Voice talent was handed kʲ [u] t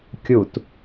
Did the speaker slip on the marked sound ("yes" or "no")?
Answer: no